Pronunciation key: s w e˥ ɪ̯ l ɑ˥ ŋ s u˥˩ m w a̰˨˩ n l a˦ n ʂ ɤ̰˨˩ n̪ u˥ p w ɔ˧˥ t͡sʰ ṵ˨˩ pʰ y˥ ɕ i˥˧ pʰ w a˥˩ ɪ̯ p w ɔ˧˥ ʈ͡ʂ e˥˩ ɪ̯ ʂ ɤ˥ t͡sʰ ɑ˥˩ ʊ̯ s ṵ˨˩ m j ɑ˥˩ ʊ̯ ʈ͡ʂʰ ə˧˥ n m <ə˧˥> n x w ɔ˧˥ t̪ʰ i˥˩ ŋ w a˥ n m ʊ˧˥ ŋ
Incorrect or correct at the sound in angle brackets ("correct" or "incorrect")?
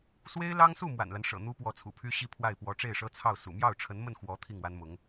incorrect